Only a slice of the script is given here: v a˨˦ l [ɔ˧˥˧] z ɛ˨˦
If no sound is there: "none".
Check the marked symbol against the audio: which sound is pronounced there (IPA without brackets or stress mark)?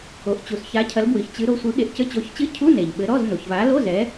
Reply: o˧˥˧